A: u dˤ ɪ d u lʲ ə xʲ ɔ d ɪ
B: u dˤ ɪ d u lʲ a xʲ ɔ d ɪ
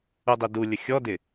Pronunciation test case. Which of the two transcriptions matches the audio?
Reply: A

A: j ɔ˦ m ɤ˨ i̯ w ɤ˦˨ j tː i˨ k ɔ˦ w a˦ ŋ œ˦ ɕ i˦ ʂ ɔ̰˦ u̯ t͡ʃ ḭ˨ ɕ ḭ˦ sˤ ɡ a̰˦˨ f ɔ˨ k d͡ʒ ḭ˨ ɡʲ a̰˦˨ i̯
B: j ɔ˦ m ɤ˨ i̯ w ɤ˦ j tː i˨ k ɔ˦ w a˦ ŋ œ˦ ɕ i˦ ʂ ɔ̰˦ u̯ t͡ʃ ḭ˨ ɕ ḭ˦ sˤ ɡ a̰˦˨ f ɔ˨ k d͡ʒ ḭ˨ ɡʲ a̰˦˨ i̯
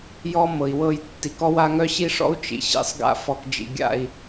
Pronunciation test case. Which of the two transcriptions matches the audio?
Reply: A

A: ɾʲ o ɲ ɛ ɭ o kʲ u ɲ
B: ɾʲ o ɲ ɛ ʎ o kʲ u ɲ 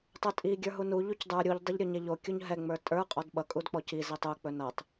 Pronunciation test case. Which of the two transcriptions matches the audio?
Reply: B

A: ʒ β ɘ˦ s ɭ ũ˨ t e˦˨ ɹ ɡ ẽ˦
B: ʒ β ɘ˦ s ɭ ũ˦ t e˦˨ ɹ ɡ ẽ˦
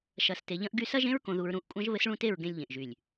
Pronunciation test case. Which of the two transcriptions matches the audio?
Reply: B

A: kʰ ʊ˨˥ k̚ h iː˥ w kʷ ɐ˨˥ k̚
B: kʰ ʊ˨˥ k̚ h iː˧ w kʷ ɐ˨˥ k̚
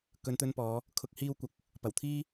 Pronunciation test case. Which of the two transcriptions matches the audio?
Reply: B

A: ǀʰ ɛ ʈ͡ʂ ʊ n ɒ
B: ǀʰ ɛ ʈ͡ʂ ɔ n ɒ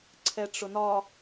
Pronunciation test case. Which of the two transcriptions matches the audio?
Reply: A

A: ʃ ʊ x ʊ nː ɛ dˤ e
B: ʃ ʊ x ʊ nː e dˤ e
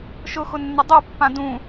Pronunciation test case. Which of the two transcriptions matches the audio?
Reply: A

